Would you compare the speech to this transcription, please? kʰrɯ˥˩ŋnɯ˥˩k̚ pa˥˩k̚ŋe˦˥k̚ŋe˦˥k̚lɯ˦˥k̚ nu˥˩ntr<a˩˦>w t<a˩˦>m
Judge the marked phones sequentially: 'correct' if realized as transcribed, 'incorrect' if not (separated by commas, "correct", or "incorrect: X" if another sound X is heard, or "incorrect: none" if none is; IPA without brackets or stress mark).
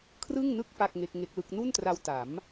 incorrect: a˧, correct